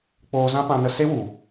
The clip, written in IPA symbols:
k͡p oː˧ z ã˦ p ã˧ n ə˧ s e˦ w u˨

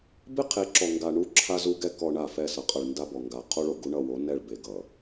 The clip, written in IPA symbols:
b ɪ˦ qʰ e˨˦ ǁ ɔ˨ ŋ ɡ a˨ ɳ u˦ ǁʰ a˦ z u˦ ɡ ɛ˦ k ɔ˨ ɳ a˦˨ f ɛ˦˨ s ʌ˨ qʼ ʌ˨ ɭ n d a˦ b ɔ˨ ŋ ɡ a˨ qʰ o˦ ɭ o˨ ɡ u˦ ɳ ʌ˦˨ w o˨˦ n ɛ˦˨ ɭ b e˨ ɡ ʌ˨

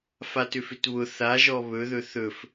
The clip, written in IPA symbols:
f a t ʏ f ʏ t β ʊ θ a ʒ ɔ β ɵ ð ɵ θ ɵ f

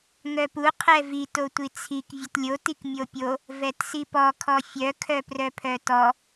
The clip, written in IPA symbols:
ŋ œ p u qʰ ɛ v i t o tʷ i t͡sʰ i k vʲ ə t lʲ o t i k mʲ o pʲ o | v ɛ t s i p ɔ kʰ ɔ fʲ œ kʰ œ p r œ pʰ œ t ɔ

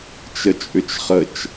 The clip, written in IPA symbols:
t͡ʃ ə t͡ʃʼ ʏ t͡ʃ χ ə t͡ʃ

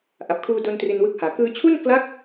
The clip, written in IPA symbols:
ʔ a˨˩ p̚ kʰ uː˧ d o˧ n t r i˧ n w ɯ˦˥ k̚ h aː˩˦ k ɯː˧ t͡ɕʰ u˥˩ n k l a˦˥ k̚

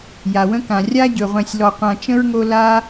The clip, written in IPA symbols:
j a˩ w ə̃˦ k ã˩ rʲ a˥ ɟ ɵ˩ ʁʷ ɛ̃˨ sʲ l ɔ˨ qʷ ã˨ t͡ʃ ə̃˥ ɹ ŋ o˦ l a˦

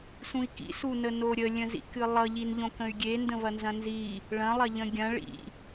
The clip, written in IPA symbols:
s ũ i̯ k ḭ s u n ə n o ɾʲ ə lʲ ə̃ z ḭ k ɨ lˠ ʌ ʎ i n ʎ õ k ə̃ y̯ ɡʲ e n d ə̃ v ɐ n z ɐ̃ n z i | ɭ ɐ̃ lˠ ɐ ʎ ə̃ ɡʲ ɐ̃ ɭ ḭ

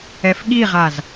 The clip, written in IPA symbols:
ɛ f ɠ i ʁ a z

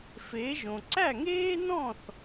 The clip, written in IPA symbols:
f eː˩˥ ʒ õ˩ ǀ æ˥˩ ŋ eː˥ n ɔ̃˥˩ θ

